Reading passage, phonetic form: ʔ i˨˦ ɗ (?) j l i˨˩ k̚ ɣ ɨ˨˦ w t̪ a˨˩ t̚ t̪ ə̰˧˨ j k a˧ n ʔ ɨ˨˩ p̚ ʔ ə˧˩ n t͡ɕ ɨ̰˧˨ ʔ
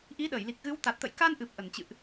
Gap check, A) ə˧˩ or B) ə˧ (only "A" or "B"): A